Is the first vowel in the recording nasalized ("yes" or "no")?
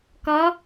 no